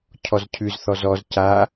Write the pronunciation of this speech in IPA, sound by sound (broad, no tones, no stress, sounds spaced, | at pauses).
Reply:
cʰ ɔ z cʰ ʉ z θ ɔ z ɔ z c a